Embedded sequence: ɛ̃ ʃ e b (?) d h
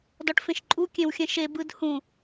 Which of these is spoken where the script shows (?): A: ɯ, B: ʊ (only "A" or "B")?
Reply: A